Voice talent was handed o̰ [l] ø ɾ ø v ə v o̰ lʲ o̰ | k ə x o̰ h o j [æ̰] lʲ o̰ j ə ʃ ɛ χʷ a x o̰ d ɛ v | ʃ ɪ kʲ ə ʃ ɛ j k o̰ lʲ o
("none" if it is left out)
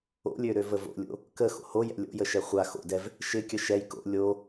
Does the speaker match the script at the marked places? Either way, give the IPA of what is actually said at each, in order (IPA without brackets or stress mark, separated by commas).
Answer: lʲ, ɛ̰